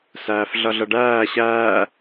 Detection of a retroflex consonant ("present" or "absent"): present